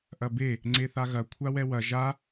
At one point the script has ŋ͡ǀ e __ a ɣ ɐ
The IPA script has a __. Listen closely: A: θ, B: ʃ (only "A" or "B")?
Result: A